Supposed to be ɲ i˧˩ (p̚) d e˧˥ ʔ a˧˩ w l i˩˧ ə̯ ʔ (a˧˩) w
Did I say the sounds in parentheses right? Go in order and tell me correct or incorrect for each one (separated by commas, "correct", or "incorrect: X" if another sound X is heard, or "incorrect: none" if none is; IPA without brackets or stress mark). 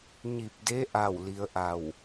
correct, correct